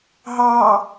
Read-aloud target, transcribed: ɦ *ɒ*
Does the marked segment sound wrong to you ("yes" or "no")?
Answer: yes